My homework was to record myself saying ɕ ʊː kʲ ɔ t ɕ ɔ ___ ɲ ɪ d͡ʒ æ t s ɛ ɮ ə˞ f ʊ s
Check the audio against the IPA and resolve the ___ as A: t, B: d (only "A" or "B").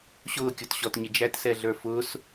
A